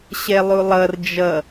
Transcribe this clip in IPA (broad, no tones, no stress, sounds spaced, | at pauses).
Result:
ɕ ɛ lˠ u lˠ ʌ r d͡ʒ ʌ